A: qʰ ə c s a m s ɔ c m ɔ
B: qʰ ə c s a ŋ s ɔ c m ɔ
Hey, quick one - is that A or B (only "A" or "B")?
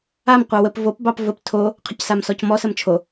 A